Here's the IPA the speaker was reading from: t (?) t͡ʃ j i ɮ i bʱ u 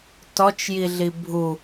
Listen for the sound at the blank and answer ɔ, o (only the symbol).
ɔ